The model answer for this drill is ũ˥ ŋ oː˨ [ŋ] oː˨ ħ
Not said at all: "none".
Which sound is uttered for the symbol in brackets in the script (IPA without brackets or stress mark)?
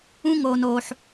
n